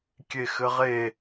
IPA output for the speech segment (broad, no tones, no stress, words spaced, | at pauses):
kʲexɘʁe